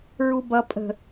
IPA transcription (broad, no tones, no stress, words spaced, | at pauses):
ɹubʌ pʼə̤